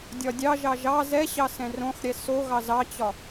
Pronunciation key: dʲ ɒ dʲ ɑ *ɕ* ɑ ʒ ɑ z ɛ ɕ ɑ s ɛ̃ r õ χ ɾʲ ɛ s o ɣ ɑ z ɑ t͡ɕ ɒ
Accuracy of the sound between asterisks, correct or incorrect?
incorrect